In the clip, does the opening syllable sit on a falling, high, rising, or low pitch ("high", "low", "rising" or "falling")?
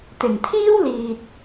low